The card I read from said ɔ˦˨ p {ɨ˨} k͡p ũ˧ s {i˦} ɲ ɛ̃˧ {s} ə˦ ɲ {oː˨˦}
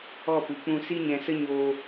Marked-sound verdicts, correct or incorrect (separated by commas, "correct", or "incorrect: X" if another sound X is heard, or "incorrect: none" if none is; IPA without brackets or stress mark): correct, correct, correct, incorrect: oː˧